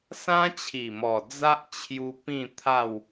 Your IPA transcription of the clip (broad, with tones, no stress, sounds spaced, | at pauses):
s ã˦ t͡ɕʰ i˨˩ m ɔ˨˩ d͡z a˦ ʔ t͡ɕʰ j u˧ p ĩ˥˧ t̪ʰ a˥˧ w